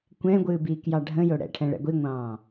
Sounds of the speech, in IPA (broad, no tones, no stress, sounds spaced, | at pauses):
kʷ ɛ̃ ɡʷ ɨː b iː k j ɑ ɖʱ ə̃ j o ɽ ɛ̰ ʈʰ ɛ̃ ɭ ɛ̰ ɡʷ i ŋʷ ɑ̃ː